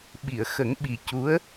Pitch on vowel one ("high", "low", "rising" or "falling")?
low